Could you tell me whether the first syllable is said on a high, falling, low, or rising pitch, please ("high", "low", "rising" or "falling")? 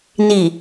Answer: low